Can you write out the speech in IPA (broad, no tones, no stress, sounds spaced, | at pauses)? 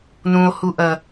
n ũ o̯ h u ʔ ɐ